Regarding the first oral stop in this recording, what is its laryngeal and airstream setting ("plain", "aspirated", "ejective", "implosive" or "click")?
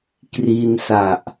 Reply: plain